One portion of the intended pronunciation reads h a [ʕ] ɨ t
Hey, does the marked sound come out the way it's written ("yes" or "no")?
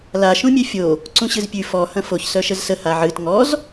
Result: yes